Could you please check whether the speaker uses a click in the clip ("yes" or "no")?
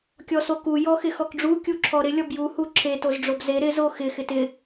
yes